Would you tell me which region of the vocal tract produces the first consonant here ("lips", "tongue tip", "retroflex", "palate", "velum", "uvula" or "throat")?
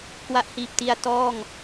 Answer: velum